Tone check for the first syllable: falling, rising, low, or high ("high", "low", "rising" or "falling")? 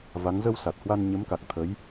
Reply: rising